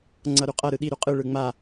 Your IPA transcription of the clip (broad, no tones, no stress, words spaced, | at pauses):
ŋ͡ǀʌɾuqʼʌ ɾɯɗi ɾuqʼɯ ɭɯŋ͡ma